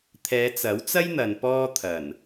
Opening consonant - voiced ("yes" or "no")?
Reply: no